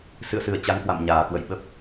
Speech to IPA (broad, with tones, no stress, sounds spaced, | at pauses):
s ɨ̰˧˨ ə̯ s ɨ˨˩ ə̯ t͡ɕ a˨˦ ŋ k w a̰˧˨ m ɲ aː˨˩ k w ə̰˧˨ j ɓ ə˦˥ p̚